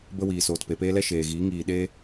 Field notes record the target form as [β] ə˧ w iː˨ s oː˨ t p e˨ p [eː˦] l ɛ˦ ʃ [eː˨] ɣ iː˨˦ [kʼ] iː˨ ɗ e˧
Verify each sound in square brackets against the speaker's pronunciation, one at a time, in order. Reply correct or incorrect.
incorrect: b, correct, correct, incorrect: ŋ

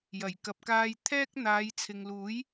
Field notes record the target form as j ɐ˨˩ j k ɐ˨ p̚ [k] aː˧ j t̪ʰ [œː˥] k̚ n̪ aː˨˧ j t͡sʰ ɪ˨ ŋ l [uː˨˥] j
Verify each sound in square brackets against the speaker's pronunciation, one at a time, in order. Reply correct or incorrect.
correct, incorrect: ɛː˥, correct

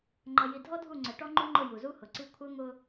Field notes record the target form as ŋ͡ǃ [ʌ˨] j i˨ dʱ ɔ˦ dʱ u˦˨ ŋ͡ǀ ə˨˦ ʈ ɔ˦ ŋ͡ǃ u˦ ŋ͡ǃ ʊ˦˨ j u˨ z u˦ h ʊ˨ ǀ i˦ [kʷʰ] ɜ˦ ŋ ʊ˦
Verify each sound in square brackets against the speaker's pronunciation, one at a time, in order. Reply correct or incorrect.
correct, correct

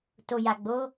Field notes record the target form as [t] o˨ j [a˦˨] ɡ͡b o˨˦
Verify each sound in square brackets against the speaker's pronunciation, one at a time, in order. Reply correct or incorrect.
correct, incorrect: a˨

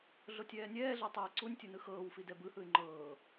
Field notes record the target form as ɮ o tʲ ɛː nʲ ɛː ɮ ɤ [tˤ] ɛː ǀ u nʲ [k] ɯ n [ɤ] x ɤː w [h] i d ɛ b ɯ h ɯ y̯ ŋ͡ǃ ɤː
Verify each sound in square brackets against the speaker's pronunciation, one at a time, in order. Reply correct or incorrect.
correct, incorrect: tʲ, incorrect: ɯ, incorrect: f

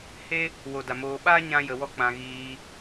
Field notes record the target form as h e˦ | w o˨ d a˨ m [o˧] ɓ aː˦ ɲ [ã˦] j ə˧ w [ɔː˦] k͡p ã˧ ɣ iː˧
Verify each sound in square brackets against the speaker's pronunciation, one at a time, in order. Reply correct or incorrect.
incorrect: oː˧, correct, incorrect: ɔ˦

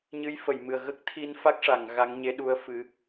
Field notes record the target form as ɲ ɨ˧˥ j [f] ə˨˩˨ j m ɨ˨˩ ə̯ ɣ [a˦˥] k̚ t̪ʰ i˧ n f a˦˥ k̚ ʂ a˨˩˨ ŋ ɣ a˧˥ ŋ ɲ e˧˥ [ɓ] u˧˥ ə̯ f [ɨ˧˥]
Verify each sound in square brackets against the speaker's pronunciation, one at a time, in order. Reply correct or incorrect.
correct, incorrect: ə˦˥, incorrect: ɗ, correct

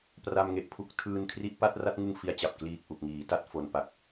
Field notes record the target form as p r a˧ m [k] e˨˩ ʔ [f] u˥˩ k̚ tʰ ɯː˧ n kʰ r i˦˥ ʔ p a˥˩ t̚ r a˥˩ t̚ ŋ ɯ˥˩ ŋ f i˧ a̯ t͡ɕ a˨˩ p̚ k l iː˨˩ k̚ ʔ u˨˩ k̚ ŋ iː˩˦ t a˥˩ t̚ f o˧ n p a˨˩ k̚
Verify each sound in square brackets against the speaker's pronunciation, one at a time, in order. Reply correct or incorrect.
incorrect: ŋ, incorrect: pʰ

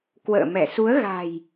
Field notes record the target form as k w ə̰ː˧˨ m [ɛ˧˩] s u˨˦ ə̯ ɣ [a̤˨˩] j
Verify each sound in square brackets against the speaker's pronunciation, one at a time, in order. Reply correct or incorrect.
correct, correct

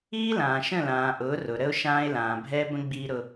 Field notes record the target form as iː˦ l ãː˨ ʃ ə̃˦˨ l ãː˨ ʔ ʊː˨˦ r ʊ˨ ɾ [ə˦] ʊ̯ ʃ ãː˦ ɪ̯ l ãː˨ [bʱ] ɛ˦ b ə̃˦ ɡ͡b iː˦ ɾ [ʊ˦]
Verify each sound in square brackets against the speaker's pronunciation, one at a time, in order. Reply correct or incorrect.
correct, correct, correct

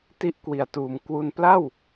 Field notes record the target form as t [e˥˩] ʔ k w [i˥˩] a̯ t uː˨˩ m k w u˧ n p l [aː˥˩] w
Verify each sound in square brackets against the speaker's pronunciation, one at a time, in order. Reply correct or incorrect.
incorrect: i˥˩, incorrect: i˨˩, incorrect: a˥˩

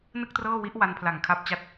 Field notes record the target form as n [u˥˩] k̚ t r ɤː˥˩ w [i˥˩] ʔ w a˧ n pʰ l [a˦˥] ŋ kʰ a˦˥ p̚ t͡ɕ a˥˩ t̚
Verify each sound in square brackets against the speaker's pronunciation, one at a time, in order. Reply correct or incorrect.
incorrect: ɯ˥˩, incorrect: i˦˥, incorrect: a˨˩

